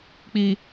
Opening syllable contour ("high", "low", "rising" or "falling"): low